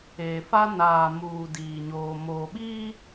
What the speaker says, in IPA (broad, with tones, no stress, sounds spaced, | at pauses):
eː˨ f a˦ n aː˨ m uː˨ d iː˨ ɲ oː˨ m oː˨ ɓ iː˦